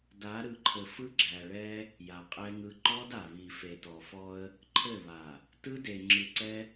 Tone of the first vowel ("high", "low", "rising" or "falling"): rising